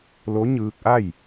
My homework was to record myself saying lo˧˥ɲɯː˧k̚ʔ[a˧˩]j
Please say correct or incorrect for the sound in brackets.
incorrect